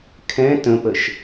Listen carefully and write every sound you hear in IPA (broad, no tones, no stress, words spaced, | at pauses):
kʰɛ̃ tə̃pəʃ